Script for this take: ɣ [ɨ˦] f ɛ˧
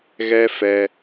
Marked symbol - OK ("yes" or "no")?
no